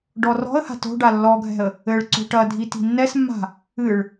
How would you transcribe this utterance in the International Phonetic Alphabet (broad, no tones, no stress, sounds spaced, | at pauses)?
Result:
ɖ ɔ r ɔ̤ ə̯ h a̤ t o̤ ɖ a lː ɔ ɡʱ ɛ̤ ə̯ | ɘ ɭ ǀ o̤ ʈ ɐ dʱ i t i̤ nː ɛ s mː a̤ | ɨ ɭ